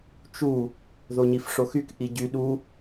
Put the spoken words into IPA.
t͡ʃ u | ð o ɲ i f ʂ o x y k ʔ i ɟ y ɗ u

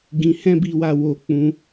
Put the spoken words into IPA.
ɡ ĩ˧ h ɛ̃˦ b i˦ w a˦ w o˧ k͡p ũ˧

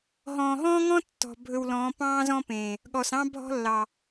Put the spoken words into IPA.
ɦ ɔ̃ː˨ ɦ ɔ̃ː˦ ŋ ɔ̃˦ tː ɔ̤˨ bʱ ɵ˨ w l ɔ̃ː˨˦ p ɑ̃ː˦ z ɔ̃˦ p ẽː˨ | ɠ ɔ˨ s ɑ̃˦ bʱ ɔ̤˦ lː ɑ˨

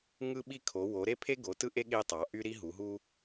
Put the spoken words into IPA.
ŋ ɯ˥ ɓ i˥ kʰ o˨˦ w o˨˦ ɾ e˥ pʰ e˥ ɡ o˨˦ t ɯ˥ ʔ e˥ ɠ e˥ tˤ ɑ˨˦ ʔ y˥ ɾ i˥ ɦ u˨˦ ɦ u˥

